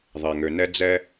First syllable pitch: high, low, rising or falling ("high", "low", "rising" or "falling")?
low